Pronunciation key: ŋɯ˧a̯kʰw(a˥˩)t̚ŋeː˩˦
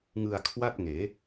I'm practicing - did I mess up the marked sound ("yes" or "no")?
no